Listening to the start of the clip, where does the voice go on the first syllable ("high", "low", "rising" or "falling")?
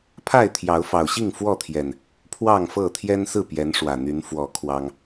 falling